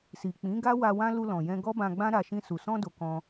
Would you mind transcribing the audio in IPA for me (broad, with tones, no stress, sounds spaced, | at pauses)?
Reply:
s i˨ k͡p ĩ˨˦ ɡ a˦ w a˧ w ã˦ l u˧ l ɔ̃˨ j ɛ̃˧ ɡ ɔ˦ b ã˧ ɡ͡b ã˦ ɾ a˧ ʃ ĩ˧ s u˨ s ɔ̃˧ d o˨ k ɔ̃˧